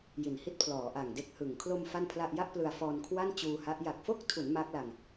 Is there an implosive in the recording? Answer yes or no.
no